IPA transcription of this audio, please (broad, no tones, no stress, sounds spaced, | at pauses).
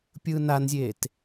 pʲ ɯː n a n zʲ eː t